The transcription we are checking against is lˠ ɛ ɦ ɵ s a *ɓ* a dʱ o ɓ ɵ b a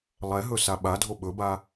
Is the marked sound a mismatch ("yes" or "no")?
no